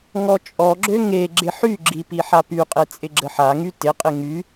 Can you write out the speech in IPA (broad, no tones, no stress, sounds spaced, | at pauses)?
ŋ ɔ t͡ʃʼ ɔ ɡ͡ǁ ø ŋ e ɡ͡ǁ ɪ ħ y ɡ͡ǁ i p i ħ a p y qʼ e t͡sʼ ɪ ɡ͡ǁ ə ħ a ŋ y t ɪ qʼ ɪ ŋ y